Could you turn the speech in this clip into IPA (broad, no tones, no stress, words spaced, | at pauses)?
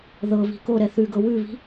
ðɤβi̤ ko ɾɛθʉɡɤ wʉβi̤